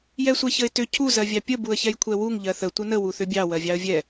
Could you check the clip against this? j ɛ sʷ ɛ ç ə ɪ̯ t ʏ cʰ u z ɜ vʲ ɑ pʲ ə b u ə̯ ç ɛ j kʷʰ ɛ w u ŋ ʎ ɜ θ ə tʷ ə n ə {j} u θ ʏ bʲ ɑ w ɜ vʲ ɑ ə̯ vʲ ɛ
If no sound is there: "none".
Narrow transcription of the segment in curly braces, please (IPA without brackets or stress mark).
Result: w